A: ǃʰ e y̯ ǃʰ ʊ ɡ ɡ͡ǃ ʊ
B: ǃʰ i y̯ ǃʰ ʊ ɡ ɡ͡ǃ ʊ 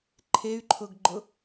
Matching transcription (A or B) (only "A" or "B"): A